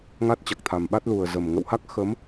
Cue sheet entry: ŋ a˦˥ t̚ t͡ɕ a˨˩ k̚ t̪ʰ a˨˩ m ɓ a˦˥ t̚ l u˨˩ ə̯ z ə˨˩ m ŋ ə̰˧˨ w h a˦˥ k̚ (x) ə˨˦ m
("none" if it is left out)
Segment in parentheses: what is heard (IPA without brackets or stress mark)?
x